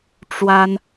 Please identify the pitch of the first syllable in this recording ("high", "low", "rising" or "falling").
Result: high